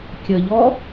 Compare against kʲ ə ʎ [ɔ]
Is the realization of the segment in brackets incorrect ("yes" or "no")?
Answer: no